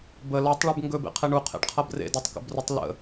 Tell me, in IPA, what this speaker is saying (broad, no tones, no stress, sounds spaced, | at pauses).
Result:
b ə l ɒ tˤ ɭ ʉ b ŋ ɡ ɵ b ḛ qʰ e ɳ u qʰ ḛ ɖ qʰ ʌ b r ḛ d a tˤ k ə̰ b r u tˤ l ə̰